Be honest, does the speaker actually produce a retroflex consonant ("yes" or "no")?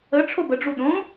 yes